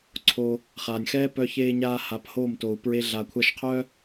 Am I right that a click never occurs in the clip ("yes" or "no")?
no